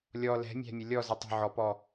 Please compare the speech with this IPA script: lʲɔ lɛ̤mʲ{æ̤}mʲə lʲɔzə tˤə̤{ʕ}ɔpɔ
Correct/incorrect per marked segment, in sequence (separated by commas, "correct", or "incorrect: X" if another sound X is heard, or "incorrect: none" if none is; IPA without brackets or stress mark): correct, correct